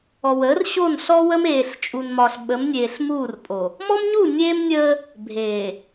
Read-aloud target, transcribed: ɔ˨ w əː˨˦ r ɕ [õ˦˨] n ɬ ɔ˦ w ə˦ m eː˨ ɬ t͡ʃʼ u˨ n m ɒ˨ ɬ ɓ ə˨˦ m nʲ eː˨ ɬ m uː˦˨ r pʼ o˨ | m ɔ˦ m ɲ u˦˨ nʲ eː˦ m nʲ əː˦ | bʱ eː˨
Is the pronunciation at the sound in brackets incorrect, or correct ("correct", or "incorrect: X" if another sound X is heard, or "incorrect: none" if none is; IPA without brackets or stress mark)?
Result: incorrect: o˦˨